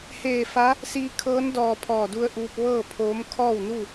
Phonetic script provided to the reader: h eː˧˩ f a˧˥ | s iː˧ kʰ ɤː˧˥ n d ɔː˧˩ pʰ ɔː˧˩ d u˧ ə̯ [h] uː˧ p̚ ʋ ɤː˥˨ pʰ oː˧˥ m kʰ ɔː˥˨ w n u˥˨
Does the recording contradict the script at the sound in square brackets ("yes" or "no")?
yes